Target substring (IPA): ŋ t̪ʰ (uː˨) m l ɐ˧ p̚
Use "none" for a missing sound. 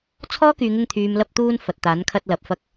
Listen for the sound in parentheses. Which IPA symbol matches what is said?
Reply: yː˨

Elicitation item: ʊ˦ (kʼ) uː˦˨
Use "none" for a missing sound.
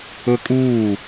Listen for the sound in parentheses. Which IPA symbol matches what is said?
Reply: kʼ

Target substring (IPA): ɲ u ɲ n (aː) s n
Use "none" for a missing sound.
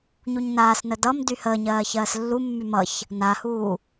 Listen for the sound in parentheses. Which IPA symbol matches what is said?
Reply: aː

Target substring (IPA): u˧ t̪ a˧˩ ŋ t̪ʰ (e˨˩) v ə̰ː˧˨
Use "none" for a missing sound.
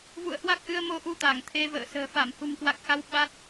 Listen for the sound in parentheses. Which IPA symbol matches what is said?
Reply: e˧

